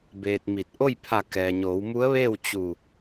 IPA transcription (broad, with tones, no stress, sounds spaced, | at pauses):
b eː˧ t̚ m i˧˩ t̚ ʔ o˥˨ j pʰ a˧˩ k ɛː˩ ɲ oː˩˧ w m u˧˥ ə̯ ʋ eː˥˨ w t͡ɕ u˧˩